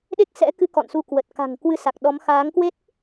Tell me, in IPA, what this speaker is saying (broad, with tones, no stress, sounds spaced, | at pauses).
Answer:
ɗ e˦˥ k̚ s ɛ̰˧˥ k ɨ˧ k ɔ̰˧˨ n s u˧ k w ə˨˩ t̚ k a̤˨˩ ŋ k w ɨ˨˦ s a˨˩ k̚ ɗ ɔ˨˦ m x aː˨˦ ŋ k w e˦˥ t̚